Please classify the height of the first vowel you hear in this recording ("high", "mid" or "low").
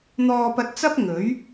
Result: mid